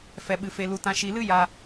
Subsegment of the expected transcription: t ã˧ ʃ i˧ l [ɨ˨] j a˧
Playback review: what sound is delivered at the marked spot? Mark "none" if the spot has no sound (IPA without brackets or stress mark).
ɨ˦